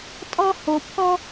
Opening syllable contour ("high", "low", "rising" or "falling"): high